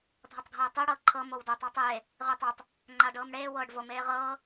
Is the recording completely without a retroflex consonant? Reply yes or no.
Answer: no